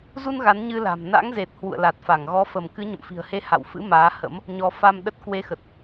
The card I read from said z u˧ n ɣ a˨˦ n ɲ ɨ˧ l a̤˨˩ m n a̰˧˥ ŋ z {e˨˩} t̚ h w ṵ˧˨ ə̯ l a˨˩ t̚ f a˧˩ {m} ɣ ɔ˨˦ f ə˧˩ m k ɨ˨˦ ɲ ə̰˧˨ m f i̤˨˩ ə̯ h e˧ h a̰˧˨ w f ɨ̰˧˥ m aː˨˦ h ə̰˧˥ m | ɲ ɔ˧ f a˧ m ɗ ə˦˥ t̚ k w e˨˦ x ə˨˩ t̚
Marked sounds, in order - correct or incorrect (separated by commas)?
correct, incorrect